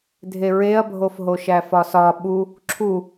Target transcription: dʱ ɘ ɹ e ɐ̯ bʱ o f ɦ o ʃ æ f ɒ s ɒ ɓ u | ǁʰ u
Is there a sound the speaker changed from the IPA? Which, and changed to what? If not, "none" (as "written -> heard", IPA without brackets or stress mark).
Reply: ɘ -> e